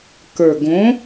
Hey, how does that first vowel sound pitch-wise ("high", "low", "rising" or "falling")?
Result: low